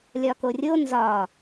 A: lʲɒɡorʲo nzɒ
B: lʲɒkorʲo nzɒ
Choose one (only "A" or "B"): B